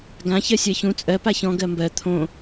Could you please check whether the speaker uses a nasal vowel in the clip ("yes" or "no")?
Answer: yes